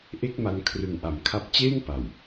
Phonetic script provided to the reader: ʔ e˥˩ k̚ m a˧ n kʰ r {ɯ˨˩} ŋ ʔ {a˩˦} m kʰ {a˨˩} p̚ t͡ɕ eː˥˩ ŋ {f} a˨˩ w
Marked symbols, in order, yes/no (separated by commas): yes, yes, no, no